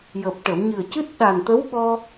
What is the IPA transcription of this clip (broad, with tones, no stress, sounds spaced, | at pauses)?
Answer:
j əː˨˩ p̚ ʈ ə˨˩˨ w ɲ ɨ˨˩ ə̯ c ɨ˦˥ t̚ ɗ a˨˩ n t̪ ə˧˥ w ɓ ɔ˧